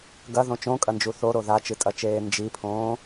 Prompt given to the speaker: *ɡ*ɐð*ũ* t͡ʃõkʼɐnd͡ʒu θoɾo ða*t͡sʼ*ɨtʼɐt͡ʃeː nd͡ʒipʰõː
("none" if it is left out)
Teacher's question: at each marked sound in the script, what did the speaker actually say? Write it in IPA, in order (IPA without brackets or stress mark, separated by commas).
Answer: ɡ, õ, t͡ʃ